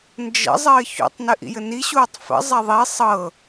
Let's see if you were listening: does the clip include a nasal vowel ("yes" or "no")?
no